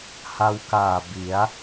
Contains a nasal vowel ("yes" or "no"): no